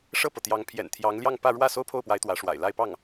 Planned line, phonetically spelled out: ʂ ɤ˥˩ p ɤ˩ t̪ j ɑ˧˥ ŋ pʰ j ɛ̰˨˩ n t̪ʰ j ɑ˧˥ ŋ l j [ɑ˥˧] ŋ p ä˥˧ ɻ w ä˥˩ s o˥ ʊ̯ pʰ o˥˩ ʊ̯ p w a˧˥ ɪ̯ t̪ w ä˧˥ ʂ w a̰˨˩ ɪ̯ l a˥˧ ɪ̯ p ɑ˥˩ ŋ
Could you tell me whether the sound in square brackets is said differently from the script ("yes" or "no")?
no